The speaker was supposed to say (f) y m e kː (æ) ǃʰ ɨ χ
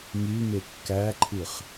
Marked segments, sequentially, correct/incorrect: incorrect, correct

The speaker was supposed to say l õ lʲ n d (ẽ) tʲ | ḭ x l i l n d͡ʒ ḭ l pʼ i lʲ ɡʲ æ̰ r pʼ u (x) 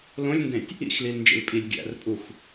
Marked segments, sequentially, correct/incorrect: correct, correct

